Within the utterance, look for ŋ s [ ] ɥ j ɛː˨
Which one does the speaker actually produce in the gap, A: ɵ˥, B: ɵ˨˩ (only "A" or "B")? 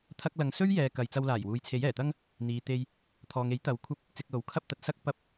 A